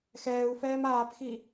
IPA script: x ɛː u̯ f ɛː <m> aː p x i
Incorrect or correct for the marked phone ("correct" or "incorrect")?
correct